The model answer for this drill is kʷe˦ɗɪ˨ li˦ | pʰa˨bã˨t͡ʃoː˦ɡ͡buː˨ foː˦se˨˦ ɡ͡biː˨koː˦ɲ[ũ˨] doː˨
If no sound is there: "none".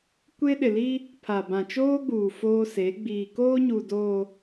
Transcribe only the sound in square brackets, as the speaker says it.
u˨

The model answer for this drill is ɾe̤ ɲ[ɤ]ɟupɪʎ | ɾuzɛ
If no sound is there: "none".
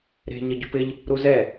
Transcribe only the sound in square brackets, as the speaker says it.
ɤ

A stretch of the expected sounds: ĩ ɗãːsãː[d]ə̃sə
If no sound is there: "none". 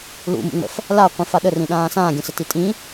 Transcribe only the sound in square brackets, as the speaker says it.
ɡʲ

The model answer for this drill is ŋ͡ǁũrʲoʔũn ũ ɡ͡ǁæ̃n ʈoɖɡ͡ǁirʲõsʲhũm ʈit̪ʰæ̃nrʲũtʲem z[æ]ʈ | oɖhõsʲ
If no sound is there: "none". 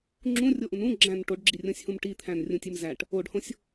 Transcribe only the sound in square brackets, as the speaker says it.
æ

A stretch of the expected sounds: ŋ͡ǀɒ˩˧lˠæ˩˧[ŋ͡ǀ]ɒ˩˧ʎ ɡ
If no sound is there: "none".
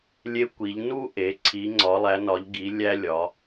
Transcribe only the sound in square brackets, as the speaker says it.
n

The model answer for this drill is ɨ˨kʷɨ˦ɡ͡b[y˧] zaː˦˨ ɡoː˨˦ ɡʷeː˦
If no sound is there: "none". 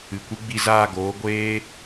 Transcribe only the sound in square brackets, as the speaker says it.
i˧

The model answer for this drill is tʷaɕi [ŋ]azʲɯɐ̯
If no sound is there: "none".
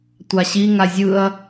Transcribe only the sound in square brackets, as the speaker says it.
ŋ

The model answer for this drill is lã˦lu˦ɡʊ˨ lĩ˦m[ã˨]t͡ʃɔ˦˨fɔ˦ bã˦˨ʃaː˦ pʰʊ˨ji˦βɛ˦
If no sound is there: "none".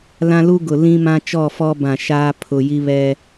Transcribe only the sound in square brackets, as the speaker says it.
ã˦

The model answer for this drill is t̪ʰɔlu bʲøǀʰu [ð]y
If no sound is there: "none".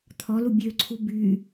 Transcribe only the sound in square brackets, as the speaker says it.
b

